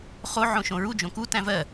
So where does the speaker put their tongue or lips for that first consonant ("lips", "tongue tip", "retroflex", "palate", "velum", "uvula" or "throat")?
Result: uvula